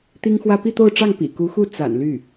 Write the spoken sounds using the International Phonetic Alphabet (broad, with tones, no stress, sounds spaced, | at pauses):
t̪ i˥ ŋ x w ä˥ p i˥˧ t̪ o˥˧ ʊ̯ ʈ͡ʂ ɑ˥˩ ŋ p ḭ˨˩ k u˧˥ x u˥˩ t͡s a̰˨˩ n l y˥˩